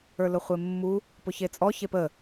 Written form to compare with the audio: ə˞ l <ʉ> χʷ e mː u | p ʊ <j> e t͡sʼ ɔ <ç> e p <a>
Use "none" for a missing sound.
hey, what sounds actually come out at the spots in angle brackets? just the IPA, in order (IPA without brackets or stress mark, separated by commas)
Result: ʊ, ç, ç, ə